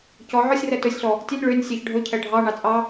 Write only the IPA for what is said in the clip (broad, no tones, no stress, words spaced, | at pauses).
cɔ ʕɔsʲrɛ tɵsʲɬɔ | tʲønʲ ɭønʲ sʲeç ɖʱɵcʰɛ ɖʱɑɳɑ t͡sʼɑ